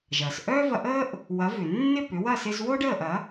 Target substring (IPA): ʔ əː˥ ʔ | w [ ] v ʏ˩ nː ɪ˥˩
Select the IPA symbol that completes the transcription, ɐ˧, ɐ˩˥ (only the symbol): ɐ˩˥